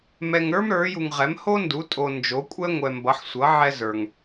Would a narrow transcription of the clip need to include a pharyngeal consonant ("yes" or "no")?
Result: yes